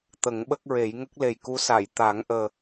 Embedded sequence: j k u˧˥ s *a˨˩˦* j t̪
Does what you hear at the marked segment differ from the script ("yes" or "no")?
yes